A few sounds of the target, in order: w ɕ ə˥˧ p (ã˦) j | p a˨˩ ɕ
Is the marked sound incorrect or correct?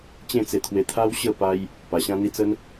incorrect: a˦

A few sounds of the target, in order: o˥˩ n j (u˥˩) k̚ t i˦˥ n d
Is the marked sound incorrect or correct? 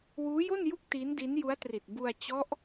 correct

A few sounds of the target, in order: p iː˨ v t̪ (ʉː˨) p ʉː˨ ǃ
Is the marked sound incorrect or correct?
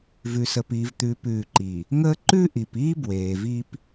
correct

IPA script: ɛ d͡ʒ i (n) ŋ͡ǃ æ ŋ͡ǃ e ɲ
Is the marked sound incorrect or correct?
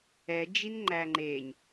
correct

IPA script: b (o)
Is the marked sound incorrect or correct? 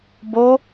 correct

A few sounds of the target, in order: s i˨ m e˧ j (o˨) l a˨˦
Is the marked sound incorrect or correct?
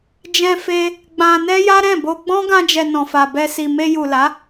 incorrect: u˨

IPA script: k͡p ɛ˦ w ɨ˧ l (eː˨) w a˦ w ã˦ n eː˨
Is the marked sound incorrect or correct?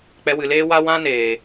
incorrect: eː˦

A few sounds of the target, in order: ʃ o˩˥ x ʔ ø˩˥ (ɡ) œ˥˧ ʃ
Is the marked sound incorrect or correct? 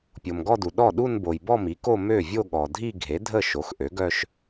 correct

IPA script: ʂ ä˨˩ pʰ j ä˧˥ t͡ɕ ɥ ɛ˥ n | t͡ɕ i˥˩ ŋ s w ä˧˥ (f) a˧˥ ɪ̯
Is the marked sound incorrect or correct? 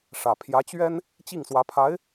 incorrect: pʰ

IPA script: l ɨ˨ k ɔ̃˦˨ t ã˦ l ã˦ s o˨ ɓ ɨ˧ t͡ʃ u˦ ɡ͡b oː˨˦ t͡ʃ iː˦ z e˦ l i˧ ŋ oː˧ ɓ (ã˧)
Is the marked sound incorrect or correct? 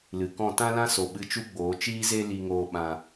correct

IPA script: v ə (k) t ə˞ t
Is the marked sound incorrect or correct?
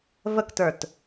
correct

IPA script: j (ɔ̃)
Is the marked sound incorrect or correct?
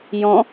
correct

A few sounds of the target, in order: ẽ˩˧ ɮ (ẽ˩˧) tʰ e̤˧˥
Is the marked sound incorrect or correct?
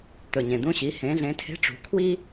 correct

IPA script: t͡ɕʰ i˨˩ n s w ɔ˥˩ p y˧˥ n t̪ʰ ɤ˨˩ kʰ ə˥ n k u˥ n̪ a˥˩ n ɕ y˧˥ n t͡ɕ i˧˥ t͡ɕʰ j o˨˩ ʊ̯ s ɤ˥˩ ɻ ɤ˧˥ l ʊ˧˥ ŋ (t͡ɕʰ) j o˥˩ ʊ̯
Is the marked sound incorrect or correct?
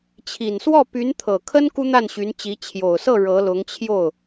correct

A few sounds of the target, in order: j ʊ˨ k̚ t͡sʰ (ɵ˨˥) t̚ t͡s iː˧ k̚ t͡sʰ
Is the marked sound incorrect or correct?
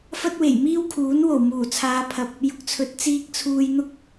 correct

